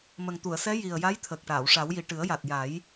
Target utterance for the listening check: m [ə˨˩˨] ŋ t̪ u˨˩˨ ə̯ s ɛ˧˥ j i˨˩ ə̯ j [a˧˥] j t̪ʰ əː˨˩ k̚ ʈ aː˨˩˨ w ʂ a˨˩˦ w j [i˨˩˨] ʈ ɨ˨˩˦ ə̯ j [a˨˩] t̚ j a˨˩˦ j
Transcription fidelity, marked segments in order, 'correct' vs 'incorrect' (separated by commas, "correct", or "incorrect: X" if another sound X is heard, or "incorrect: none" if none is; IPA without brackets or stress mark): incorrect: ə˨˩, correct, incorrect: i˨˩, correct